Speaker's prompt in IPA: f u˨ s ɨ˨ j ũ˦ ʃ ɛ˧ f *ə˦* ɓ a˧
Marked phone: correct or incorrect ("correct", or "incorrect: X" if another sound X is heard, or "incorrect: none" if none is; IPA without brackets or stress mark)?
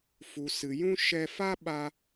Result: incorrect: a˦